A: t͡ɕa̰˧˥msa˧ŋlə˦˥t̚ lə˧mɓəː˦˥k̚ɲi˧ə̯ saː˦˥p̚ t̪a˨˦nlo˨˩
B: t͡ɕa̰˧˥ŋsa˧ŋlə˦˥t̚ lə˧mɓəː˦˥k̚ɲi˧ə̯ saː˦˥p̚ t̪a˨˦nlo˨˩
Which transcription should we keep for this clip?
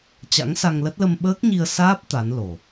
B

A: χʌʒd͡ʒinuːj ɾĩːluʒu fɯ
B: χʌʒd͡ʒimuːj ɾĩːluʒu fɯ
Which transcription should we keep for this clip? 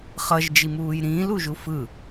B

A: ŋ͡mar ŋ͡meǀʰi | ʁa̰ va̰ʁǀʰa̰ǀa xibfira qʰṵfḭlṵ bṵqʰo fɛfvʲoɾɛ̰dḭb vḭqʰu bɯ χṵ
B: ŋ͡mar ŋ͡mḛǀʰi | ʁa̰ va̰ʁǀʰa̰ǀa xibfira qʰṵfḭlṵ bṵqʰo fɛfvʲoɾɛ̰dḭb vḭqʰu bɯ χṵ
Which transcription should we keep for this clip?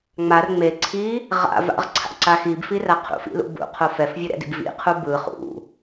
A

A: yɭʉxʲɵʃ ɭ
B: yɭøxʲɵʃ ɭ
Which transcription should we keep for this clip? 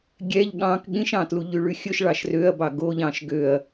A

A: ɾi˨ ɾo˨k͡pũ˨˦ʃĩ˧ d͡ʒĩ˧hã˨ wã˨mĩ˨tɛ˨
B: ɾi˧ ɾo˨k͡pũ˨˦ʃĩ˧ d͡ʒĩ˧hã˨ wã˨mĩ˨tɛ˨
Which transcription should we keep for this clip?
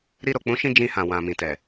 B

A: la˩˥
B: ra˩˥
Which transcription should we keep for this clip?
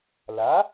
A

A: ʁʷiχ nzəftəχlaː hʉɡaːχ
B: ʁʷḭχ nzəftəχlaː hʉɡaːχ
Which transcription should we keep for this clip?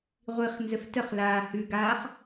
A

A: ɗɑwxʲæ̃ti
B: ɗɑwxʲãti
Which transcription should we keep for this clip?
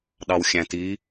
A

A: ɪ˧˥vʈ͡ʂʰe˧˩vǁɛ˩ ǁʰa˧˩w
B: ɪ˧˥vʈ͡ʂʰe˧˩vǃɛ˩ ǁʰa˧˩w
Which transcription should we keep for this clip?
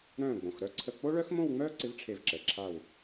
A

